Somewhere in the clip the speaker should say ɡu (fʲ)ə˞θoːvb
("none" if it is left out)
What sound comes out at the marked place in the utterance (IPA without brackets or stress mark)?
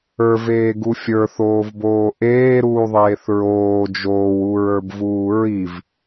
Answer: fʲ